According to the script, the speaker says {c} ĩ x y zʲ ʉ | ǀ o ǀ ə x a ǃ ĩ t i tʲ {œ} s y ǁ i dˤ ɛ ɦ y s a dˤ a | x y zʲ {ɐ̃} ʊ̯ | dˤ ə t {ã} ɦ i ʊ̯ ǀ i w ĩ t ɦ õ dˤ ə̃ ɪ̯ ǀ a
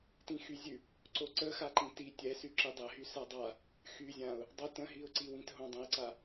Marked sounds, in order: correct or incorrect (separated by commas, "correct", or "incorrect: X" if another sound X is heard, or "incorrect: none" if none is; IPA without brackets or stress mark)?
incorrect: t, incorrect: ɛ, incorrect: ã, incorrect: ə̃